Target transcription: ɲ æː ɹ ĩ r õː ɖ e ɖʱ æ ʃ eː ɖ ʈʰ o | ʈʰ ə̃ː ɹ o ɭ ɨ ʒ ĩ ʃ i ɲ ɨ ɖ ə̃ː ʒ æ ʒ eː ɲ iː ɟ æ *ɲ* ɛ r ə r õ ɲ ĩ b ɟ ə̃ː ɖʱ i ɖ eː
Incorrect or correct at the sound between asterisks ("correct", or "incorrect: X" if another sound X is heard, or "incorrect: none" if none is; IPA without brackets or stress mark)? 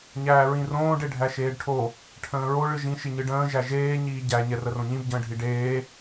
correct